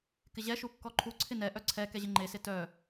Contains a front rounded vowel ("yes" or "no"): yes